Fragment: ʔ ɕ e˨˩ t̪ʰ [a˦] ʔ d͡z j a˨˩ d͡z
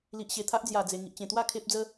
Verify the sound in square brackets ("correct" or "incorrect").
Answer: correct